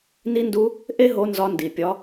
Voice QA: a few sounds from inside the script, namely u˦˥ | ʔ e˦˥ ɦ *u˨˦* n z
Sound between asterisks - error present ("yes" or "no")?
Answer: yes